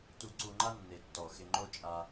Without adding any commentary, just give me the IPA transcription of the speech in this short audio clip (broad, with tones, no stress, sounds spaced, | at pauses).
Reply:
t u˧ ǀ u˧ ŋ͡ǃ a˦ nː e˨ tː ɔ˨ x ɪ˧ ŋ͡ǃ o˦ t͡ʃʼ a˧